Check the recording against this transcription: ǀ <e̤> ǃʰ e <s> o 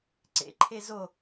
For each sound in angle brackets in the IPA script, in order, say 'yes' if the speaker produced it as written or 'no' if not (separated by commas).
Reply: no, no